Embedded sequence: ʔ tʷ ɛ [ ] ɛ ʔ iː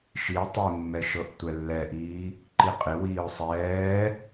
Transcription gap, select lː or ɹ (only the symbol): lː